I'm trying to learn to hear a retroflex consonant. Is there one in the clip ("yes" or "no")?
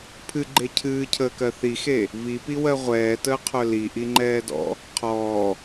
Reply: no